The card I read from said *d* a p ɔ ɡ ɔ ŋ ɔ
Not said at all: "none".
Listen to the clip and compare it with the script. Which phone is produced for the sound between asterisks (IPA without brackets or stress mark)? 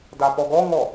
d